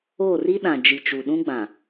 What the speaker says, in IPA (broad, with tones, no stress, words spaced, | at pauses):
o˦˨ri˦ ɗã˨d͡ʒi˨t͡ʃu˨ ɗũ˦ɡ͡bã˨